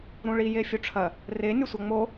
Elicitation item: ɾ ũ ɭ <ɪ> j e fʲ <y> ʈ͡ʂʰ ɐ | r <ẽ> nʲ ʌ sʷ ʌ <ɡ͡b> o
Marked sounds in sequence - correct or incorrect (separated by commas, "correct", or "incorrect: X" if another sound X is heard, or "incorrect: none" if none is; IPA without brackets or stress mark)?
incorrect: i, incorrect: u, incorrect: e, incorrect: ŋ͡m